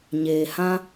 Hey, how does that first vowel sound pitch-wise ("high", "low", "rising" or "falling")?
low